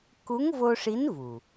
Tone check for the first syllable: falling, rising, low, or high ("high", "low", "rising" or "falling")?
rising